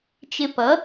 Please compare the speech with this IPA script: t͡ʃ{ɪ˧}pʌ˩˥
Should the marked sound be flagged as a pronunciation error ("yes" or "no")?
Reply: no